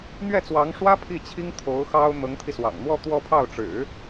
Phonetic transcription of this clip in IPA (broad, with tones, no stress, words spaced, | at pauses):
n̪ɥɛ˥˩t͡swɑ˧˥ŋʂwä˥ pʰi˥˩t͡ɕʰi˥ŋ t̪ʰo˧˥ʊ̯ xɑ˥ʊ̯ n̪ɤ˧˥ŋt̪ʰi˧swɑ̰˨˩ŋn̪wɔ˥˧ t̪wɔ˥˧pʰɑ˥˩ʊ̯ ʈ͡ʂɻ̩˨˩˦